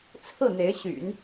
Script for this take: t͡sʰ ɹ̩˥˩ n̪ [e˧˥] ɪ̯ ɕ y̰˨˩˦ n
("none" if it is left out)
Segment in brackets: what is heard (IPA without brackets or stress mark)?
e˧˥